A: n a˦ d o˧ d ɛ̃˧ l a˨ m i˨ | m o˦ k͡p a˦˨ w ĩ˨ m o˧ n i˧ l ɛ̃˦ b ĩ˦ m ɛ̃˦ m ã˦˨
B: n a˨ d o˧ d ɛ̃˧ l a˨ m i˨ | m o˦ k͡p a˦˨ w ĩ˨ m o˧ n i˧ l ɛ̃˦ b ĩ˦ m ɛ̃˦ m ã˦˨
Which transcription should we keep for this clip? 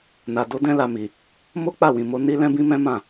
B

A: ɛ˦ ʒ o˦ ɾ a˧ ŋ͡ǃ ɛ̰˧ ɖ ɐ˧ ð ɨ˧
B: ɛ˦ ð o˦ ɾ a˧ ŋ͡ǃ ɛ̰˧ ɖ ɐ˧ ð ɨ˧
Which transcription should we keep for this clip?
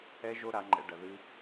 A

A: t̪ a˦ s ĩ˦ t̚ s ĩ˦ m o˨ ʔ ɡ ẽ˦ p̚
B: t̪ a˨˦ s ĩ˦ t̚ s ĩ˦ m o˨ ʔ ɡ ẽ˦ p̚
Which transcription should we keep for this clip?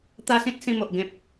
A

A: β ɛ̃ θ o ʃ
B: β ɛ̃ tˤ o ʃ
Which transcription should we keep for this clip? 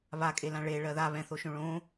A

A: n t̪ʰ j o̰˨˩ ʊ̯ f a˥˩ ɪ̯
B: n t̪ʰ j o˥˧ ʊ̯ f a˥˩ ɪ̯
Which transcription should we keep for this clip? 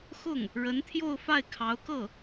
B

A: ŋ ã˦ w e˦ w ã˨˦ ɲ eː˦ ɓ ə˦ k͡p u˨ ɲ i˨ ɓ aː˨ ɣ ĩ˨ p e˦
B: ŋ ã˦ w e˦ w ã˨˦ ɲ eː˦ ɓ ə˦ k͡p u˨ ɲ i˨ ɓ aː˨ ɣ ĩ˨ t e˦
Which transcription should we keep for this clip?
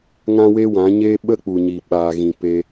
A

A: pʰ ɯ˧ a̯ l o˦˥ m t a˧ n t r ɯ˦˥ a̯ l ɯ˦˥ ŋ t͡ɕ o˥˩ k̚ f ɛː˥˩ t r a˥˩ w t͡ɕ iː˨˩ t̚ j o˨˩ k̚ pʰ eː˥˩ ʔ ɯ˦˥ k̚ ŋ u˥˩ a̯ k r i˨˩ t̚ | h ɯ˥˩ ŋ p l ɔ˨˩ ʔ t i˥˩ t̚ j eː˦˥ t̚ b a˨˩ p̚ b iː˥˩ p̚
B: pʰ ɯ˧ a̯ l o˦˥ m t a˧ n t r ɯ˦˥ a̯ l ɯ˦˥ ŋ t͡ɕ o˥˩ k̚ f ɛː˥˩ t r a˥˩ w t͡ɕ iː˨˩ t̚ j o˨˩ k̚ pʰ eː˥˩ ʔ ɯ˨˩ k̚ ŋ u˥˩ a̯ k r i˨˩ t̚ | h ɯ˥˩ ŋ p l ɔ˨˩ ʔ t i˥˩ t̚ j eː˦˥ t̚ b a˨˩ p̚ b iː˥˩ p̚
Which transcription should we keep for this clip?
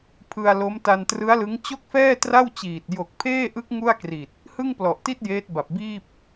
A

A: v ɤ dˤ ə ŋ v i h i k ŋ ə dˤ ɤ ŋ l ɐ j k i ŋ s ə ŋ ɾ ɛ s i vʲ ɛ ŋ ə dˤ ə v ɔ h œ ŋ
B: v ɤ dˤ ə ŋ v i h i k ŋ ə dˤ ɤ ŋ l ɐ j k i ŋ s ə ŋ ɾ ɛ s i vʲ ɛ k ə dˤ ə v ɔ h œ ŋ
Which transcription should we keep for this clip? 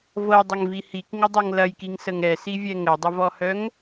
A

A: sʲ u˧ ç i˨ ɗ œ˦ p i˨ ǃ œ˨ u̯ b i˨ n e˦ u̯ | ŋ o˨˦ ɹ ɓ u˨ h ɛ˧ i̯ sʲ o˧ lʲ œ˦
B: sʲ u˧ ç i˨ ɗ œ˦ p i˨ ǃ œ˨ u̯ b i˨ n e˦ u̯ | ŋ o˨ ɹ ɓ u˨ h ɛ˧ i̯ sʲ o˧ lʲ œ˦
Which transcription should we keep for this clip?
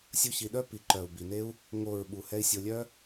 B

